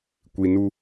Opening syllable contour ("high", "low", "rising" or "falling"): low